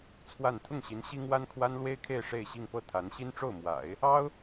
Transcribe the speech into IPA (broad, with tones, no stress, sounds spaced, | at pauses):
t͡sʰ w a˥˧ n t̪ʰ ʊ˥˩ ŋ ɕ i˧˥ n ɕ i˥ ŋ w a˥ n kʰ w a˥ n l w e˥ ɪ̯ kʰ e˥˧ ɪ̯ ʂ e˥˧ ɪ̯ ɕ i˥˧ ŋ p ɤ˥˩ t̪ʰ a˧˥ n ɕ i˥ n ʈ͡ʂ o˥˩ ʊ̯ m w a̰˨˩˦ ɪ̯ | ɑ˥ ʊ̯